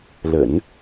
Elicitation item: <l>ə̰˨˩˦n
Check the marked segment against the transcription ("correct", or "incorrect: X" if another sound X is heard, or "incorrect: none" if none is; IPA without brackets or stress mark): correct